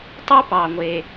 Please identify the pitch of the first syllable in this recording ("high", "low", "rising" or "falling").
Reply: high